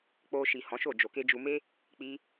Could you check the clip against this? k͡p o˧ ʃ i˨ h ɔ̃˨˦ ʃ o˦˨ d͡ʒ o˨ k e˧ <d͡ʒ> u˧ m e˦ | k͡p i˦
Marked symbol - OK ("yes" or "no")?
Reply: yes